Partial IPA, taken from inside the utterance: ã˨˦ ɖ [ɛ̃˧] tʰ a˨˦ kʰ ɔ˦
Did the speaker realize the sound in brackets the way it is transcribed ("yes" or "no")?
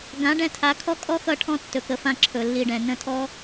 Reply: yes